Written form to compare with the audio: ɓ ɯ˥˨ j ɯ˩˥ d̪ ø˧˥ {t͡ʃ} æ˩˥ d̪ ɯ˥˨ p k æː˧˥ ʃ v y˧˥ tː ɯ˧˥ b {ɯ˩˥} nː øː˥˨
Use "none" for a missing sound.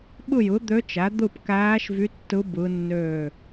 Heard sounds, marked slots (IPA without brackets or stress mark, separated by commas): t͡ʃ, ɯ˧˥